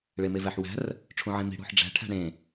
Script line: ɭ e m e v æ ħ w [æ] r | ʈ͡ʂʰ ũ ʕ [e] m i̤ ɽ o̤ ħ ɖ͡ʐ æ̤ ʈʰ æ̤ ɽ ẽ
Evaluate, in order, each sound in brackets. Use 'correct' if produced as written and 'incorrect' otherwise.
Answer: incorrect: æ̤, incorrect: ẽ

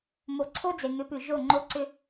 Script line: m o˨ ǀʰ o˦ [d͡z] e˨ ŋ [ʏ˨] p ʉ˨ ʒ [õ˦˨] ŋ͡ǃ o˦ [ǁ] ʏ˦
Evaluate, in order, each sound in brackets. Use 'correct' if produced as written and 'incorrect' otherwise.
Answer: correct, incorrect: ʏ˨˦, incorrect: o˦˨, incorrect: ǀ

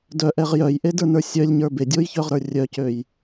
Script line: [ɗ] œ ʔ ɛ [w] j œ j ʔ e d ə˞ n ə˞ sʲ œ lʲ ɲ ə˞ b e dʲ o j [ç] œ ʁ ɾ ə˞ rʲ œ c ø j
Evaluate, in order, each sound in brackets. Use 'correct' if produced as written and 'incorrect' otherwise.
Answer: incorrect: d, incorrect: ʁ, correct

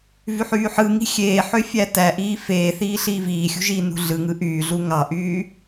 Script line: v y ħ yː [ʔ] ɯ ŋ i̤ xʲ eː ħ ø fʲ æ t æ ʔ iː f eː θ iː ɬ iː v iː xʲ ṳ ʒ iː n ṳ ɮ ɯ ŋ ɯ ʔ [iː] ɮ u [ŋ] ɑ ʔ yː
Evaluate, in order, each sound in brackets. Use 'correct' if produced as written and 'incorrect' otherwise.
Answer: incorrect: ħ, incorrect: yː, correct

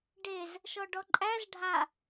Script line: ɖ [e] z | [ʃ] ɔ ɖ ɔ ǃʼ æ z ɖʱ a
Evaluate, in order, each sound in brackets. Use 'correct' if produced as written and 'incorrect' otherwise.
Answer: correct, correct

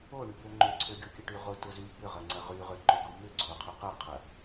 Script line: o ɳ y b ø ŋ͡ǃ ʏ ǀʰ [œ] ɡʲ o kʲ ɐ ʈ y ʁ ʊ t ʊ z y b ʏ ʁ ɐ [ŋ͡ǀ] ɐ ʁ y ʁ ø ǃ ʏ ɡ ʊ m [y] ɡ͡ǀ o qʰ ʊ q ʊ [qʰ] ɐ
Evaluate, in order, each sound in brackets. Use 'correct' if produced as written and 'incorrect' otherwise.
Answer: incorrect: ø, correct, incorrect: ʏ, correct

